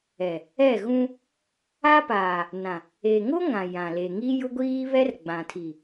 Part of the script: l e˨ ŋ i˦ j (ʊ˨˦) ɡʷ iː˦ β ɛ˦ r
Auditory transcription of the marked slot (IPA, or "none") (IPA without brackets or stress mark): ʊ˦